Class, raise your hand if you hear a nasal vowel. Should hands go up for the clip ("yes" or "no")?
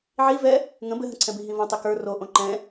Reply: yes